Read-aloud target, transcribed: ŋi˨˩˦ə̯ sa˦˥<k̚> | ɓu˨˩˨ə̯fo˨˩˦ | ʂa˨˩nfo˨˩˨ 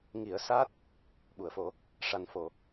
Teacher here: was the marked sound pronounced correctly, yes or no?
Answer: no